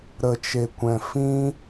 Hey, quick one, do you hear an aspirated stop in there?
no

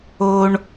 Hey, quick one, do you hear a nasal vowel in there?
no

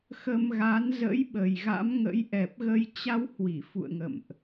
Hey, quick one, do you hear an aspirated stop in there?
no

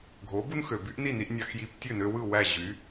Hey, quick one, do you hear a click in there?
no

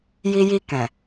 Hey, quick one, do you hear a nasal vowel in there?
yes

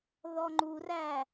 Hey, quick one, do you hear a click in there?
yes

